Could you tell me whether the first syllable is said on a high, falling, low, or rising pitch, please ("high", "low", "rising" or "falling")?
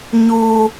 low